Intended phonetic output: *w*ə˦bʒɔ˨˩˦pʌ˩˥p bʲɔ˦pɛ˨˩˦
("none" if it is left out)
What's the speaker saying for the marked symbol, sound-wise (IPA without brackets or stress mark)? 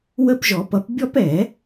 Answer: w